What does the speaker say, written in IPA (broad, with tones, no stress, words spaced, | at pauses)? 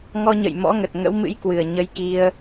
ŋɔ˧ɲə̰˧˨j mɔ̰˧˥ŋə˨˩t̚ ŋə̰˧˥wmɨ̰˧˥jkwɨ˨˩ə̯ ɲə˧jki˧ə̯